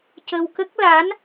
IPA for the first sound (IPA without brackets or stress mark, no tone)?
c